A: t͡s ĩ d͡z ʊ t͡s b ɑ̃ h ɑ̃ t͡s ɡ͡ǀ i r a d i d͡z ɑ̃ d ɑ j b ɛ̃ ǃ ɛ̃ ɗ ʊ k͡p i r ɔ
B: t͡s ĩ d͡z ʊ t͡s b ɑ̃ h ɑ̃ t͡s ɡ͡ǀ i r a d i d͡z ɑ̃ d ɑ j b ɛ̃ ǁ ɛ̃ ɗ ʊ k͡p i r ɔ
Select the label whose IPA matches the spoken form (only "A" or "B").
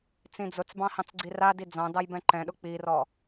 A